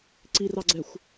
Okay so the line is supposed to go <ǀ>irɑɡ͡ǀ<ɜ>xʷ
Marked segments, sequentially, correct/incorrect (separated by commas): correct, incorrect